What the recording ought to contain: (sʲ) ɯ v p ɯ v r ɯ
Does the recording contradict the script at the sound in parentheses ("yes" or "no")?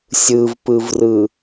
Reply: no